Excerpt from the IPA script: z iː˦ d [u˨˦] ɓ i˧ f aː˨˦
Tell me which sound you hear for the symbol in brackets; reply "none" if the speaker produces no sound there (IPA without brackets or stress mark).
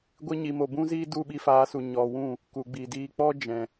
u˦˨